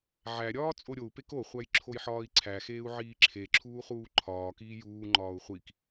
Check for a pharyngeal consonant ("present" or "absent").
present